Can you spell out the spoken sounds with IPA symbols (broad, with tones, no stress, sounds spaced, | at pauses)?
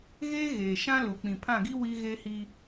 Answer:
ɣ eː˦ ɣ eː˨ ʃ ã˦ l u˨ k͡p ĩ˨ pʰ ã˦˨ ɡ i˦ w i˦ ɣ eː˦ h iː˦